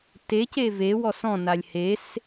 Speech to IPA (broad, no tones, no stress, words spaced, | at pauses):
tece vewɔs ɔ̃nalʲ hes